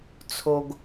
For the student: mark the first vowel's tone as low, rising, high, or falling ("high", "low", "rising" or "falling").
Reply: low